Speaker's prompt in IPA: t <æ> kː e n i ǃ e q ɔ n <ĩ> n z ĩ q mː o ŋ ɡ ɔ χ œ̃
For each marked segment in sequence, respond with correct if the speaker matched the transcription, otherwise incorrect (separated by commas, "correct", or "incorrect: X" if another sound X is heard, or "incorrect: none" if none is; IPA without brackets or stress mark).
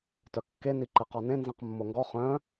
incorrect: œ, incorrect: ẽ